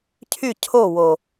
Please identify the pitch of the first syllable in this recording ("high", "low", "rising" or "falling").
falling